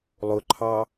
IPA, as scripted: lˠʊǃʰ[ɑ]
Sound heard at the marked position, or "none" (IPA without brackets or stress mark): ɑ